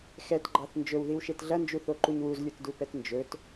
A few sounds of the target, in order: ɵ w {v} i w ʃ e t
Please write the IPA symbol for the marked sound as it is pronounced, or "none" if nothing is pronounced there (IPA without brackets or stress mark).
ð